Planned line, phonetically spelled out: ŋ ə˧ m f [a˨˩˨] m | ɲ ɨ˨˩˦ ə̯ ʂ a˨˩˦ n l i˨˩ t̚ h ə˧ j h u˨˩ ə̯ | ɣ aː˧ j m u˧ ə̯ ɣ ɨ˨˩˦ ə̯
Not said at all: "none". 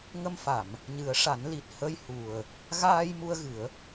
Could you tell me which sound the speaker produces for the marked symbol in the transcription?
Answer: a˨˩˨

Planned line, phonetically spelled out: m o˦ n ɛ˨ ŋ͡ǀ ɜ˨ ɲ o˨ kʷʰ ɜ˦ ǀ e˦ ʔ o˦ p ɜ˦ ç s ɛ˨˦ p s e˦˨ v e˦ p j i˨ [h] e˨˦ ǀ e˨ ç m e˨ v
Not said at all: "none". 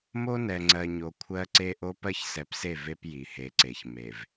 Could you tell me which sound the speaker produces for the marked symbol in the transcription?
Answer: h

